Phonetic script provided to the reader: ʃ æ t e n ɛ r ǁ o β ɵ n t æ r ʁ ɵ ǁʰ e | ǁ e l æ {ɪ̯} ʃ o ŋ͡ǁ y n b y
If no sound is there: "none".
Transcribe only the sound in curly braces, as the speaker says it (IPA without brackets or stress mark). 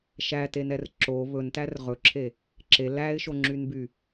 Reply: ɪ̯